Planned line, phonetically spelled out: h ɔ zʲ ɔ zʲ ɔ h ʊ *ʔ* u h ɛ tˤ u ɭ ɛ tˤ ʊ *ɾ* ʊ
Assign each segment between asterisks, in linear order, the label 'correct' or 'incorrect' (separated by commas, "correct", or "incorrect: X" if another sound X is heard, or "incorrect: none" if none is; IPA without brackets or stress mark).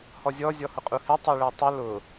incorrect: qʼ, incorrect: l